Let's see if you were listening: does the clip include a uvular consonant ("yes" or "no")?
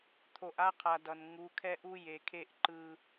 yes